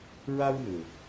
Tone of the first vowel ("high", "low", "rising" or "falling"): high